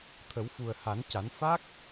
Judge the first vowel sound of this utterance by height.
mid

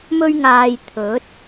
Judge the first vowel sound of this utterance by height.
mid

